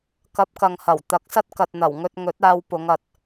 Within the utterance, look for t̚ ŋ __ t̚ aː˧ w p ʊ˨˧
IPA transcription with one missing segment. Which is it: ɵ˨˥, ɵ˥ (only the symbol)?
ɵ˨˥